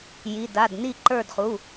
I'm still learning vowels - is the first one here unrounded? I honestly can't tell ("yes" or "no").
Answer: yes